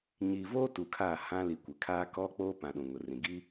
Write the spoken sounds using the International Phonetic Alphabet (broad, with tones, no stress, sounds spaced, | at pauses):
ɲ i˨ v oː˦ t u˨ kʰ aː˦˨ h ã˦ l i˨ kʷ ɪ˨ kʰ aː˦ k ɔ˦ k͡p oː˦ p ã˨ ɗ ũ˨ ŋ ʊ˨ r ĩ˨ ɡ i˦